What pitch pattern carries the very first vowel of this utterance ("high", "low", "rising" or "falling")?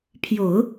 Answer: low